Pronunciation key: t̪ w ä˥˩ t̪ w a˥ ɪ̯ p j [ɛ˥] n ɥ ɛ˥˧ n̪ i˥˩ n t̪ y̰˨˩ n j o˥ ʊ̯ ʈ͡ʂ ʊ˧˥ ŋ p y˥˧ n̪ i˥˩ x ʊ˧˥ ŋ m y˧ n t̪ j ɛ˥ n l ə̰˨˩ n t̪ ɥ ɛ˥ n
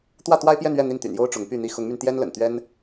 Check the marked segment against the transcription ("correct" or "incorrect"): incorrect